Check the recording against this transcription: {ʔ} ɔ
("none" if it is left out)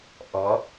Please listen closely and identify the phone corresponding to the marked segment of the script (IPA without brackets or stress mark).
ʔ